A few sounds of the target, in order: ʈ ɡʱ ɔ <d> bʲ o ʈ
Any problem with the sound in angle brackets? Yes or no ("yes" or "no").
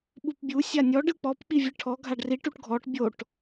yes